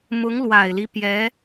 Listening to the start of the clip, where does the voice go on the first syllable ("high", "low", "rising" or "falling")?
rising